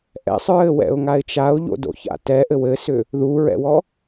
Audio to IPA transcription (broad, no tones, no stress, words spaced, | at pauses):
ʔɛ̰sˤɹɘwɛ̰ʊ̯ŋaɪ̯ t͡ʃaʊ̯ʎo̰do̰ça̰ tɛʔɘ wɘsʏ | ðuɹɛ̰wɔ